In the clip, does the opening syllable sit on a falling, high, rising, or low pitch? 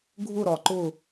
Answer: falling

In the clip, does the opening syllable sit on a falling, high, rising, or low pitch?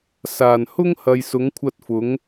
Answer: low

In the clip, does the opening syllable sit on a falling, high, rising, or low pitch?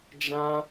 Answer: high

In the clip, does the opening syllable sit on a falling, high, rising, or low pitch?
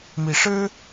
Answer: rising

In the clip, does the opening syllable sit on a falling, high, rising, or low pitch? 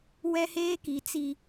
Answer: high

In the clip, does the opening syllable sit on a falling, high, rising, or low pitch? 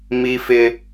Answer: high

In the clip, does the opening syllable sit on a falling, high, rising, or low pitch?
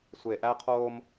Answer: low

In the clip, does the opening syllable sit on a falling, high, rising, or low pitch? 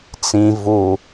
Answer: low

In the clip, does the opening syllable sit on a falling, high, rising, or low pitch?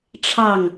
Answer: falling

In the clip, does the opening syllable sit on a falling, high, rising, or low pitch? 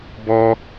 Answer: high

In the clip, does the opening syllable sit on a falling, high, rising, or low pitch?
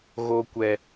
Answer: low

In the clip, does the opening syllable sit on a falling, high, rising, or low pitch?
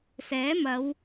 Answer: rising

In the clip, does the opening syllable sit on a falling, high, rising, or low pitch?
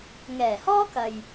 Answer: low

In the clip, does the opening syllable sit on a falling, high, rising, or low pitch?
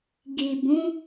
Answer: low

